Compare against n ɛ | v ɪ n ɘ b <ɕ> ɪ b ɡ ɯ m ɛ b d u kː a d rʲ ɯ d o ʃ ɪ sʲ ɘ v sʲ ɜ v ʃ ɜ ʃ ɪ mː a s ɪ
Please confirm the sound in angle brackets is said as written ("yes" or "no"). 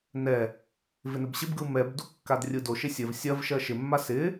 yes